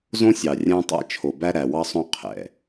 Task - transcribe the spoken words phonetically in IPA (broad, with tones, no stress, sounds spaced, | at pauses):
z õ˦ sʲ ɑ˨ rʲ æ̃˦ tˤ æ̰˦ t͡ʃʰ o˨ b æ˦ ɾ æ˨ w ɑ˦ sˤ õ˦ qʰ ɛ̰˨